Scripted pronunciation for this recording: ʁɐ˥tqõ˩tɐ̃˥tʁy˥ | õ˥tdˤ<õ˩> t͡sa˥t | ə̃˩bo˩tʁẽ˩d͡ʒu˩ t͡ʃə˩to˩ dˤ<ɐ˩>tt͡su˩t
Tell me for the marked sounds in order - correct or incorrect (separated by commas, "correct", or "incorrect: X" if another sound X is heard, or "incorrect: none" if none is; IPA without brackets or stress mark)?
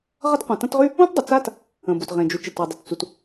incorrect: o˩, incorrect: ə˩